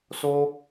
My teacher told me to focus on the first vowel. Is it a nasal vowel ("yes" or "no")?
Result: no